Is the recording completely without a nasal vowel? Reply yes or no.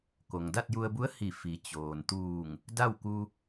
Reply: yes